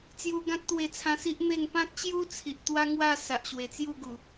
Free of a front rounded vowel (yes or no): yes